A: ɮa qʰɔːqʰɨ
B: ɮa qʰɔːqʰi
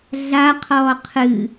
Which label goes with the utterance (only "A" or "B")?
A